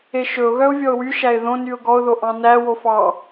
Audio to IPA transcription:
e ʃ ɵ ʊ̯ ɣ œ ʊ̯ vʲ ɔ ʊ̯ w y ʃ æ ɪ̯ ð õ n y ʊ̯ ɡ ɔ ʊ̯ ð o ʔ ɑ̃ n æ w o f ɑ

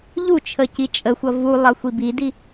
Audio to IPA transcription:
ʎ u t͡ʃʰ ə c i t͡ʃʼ ə xʷ ʌ v u lˠ ʌ xʷ i b i d i

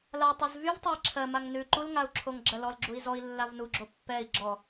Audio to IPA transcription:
l a tˤ ʉ z v y v tˤ o i̯ ǁʰ ɜ m a ŋ n ʉ ǃ u l ŋ a u̯ ǁʰ o ŋ ɡ͡ǁ ɜ l ɔ l ɡ͡ǁ u i̯ z ɔ i̯ lː a v n u ɡ͡ǁ o pː ɛ i̯ ɡ͡ǁ ɔ

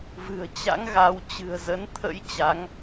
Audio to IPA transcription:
v ɨ̤˨˩ ə̯ t͡ɕ a̰˧˥ ŋ ɣ a˨˦ w t͡ɕ ɨ̤˨˩ ə̯ z ə˨˦ n t̪ʰ ə̰˧˥ j t͡ɕ a˨˦ ŋ

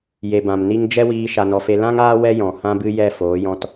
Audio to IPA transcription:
j e˨ b ã˨ m n i˦ ŋ d͡ʒ ɛ˦ w iː˧ ʃ a˧ n ɔ˧ f e˦ l ã˦ ŋ aː˦ w ɛ˦ j ɔ̃˨ h ã˦ b ɨ˦ j ɛ˦˨ f oː˨˦ j ɔ̃˧ t

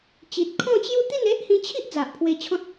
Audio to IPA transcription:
t͡ɕ i˨ t̚ kʰ ɔ̃˥˧ t͡ɕ j u˥˧ t̪ i˥˧ n e˦ ʔ h ĩ˧ t͡ɕʰ i˦ ʔ d͡z a˨ ʔ pʰ w e˧ t͡ɕʰ ɔ̃˦ t̚

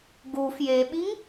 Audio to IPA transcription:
ɡ u f j e ɓ i ŋ

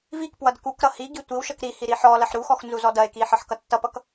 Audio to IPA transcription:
v i k p w ʌ d k u k ɾ ʌ h i ɡ i tʷ i w ʃ ʌ k ɾ i h i ɾ i ħ ɔ l ɐ ħ ɾ u x ɔ x n z u z ɔ d ɐ e̯ k i ħ ʌ ħ k ʌ tː ʌ p ʌ k

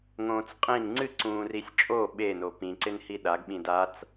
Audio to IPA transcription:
ŋ õː t͡s qʼ ĩ n ŋ͡ǀ ɨ ǀ ũː r i sʲ t͡ʃʼ o ɓ e n o p ĩ ǀ ɪ n h i ɗ a ɡ ɓ ĩ d a t͡s

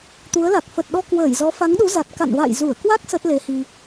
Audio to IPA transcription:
t̪ u˨˦ ə̯ l a˨˩ k̚ f ə˨˩ t̚ ɗ ɔ˧ k w əː˧˩ j z ɔ˨˦ f a˨˦ ŋ ɗ u˨˦ z a˨˩ t̚ k a̰˧˨ n v a̰˧˨ j z u˧˩ ə̯ k w a˦˥ k̚ s ə˦˥ t̚ l e˨˦ h i˧

